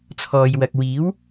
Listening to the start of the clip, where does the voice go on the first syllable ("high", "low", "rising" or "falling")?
low